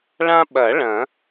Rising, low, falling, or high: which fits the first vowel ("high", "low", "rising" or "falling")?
high